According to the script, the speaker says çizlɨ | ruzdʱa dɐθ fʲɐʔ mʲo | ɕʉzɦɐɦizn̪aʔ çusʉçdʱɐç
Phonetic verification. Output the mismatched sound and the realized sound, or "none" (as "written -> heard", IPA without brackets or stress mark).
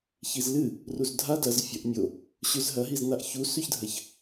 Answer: θ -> z